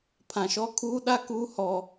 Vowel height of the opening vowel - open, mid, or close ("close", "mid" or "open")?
open